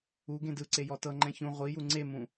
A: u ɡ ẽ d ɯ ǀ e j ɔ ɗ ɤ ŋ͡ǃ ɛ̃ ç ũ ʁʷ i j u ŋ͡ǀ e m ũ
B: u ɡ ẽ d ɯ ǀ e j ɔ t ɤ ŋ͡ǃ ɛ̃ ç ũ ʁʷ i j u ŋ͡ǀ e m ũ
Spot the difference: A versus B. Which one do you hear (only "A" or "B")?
B